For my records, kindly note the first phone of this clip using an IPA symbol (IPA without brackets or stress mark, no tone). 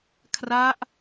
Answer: kʰ